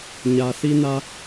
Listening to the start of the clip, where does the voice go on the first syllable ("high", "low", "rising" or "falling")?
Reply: low